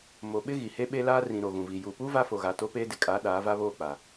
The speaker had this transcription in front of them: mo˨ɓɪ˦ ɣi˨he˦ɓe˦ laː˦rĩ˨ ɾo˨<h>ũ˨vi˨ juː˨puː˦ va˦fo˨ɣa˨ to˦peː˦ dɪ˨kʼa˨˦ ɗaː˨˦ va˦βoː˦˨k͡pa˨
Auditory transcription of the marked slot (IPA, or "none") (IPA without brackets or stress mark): ɣ